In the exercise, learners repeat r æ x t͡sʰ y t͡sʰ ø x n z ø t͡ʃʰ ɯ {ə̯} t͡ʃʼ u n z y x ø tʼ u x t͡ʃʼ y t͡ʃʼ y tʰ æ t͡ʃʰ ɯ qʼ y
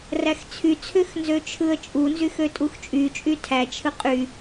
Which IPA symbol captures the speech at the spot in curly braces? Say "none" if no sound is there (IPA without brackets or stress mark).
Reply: ə̯